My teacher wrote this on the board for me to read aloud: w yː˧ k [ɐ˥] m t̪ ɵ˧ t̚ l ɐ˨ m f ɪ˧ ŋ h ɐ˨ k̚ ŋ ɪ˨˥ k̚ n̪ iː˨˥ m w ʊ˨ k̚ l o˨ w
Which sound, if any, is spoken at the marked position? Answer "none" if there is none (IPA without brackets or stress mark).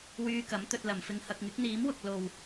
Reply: ɐ˨˥